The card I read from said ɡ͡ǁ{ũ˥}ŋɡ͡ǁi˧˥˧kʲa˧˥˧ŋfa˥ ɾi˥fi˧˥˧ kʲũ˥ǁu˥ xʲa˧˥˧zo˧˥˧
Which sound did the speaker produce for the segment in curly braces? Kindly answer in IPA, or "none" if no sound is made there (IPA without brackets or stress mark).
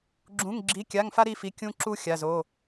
ũ˧˥˧